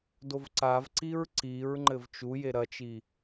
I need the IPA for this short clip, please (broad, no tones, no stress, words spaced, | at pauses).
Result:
dovǀavǀiɹ ǀiɹ ŋ͡ǃɘvt͡ʃuje ɾɐt͡ʃi